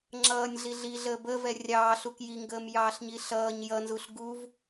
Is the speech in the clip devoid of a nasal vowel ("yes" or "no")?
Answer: yes